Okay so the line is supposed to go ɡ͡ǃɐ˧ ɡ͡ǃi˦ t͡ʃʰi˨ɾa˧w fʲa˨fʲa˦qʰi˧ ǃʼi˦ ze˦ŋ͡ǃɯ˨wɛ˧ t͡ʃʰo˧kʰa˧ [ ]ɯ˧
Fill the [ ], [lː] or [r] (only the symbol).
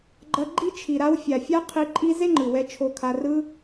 r